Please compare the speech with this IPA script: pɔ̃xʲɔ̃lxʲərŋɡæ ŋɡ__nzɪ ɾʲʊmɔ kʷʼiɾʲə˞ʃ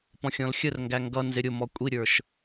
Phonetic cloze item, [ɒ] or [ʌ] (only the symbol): ʌ